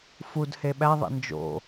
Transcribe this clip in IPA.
f u d h e ɓ æ ðˤ ḛ n d͡ʒ o̰

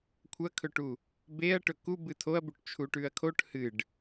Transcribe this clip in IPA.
kʷʰ ɐ kʰ ɵ ʈ u | b e ɐ̯ ʈ ɵ k u b ɨ tʰ o ɐ̯ b u ʈ t͡ʃʰ u ʈ ʉ ɐ̯ kʰ o ʈ h ɨ ɖ

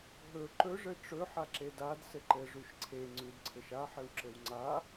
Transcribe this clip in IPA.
ɦ ɵ ǃ ɵ ʐ ɘ ʈ͡ʂ ɵ ħ a ǁ e d a d s ɘ ǃ ɘ ʐ ʉ ʃ ǀʰ e ŋ͡ǀ ʉ d ǀʰ ɘ ʃ a ħ ɘ w ǁ ɘ w ŋ͡ǀ a

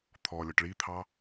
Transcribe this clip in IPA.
t̪ʰ ɔ lʲ ɒ ʈ ɭ i t̪ʰ ɑ

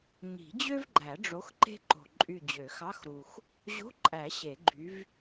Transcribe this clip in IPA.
ɲ i̤˨˩˦ d͡ʑ ø˥ v ɡ͡ǃ æ˨˩˦ ɖ͡ʐ o˨˥ x ǃ e̤˥ ǃ o̤˨ ǃʼ y˦˨ d͡ʑ ø˨˩˦ x ɑ˧˥˧ x ɾ u˨ x | ʑ o̤˧˥˧ ǃʼ æ˨˩˦ ɕ e˨˩˦ ɡ͡ǃ y˨˥ v

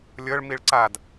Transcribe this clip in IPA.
lʲ ɤ ɭ m i ɭ ǀ a d

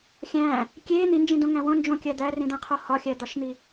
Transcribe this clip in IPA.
xʲ æ̃ | kʲ e n̪ i n d͡ʒ ĩ d õ ŋ æ̃ w õ n d͡ʒ õ kʲ æ d̪ æ r ĩ d̪ æ̃ qʰ o h ɒ xʲ æ d̪ ɒ ʃ n̪ i

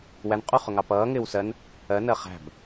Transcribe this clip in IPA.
w æ n qʼ u χ ʊ ŋ ɑ p ʌː ŋ ɪː w s ɜ n | ɜ n ɜ χ æ̤ b

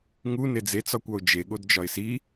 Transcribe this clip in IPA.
ŋ u n e d͡z e t͡s ɒ kʷ ɒ ʊ̯ d͡ʒ e ɠ o d d͡ʒ ɒ ɪ̯ s i

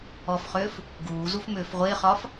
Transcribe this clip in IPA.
ɔ f χ ʏː f | ɡ uː z u f m ʏː f ʁʷ ɪː χ ɒ f

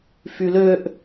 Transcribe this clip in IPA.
f y l ø ʔ

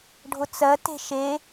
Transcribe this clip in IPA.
ɖʱ ʊ t͡s ɜ t e̤ ʃ e

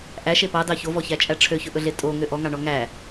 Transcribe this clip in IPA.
ʔ æ ʃ e p ɑ d ɑ ç o v ɔ ç æ t͡ʃʼ æ ʈ͡ʂʰ ø ç ɵ ʔ ɵ ɮ e tʼ o ŋ ø ʔ ɔ ŋ ɑ ɳ ɔ ŋ æ

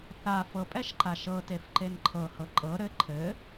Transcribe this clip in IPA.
θ a f ɤ pʼ ɛ ʃ ǃ a ʃ ɤ t e f ǃ e n ǃʰ ɤ h ɤ ǃʼ ɤ ɾ ɘ ǃʰ ɘ

